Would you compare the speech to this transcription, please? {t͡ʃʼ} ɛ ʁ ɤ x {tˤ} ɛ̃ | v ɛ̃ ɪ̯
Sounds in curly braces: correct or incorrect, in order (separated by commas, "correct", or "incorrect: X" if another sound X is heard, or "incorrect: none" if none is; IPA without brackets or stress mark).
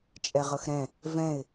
correct, incorrect: ɾ